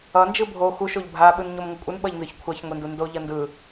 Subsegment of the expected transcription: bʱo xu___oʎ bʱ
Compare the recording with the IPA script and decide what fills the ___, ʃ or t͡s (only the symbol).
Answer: ʃ